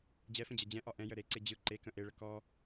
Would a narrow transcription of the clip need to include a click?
yes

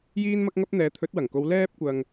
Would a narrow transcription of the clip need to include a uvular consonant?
no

